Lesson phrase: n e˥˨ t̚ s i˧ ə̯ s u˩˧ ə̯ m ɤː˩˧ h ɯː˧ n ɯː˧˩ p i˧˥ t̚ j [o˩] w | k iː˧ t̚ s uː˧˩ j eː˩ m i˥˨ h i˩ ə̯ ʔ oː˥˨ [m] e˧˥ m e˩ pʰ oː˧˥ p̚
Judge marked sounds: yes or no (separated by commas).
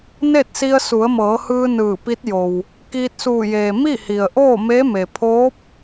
yes, yes